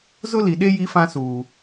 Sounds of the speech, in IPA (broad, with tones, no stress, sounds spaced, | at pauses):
z ʊ˦ l i˨ ɗ e˦ j i˦ f ã˦ s uː˨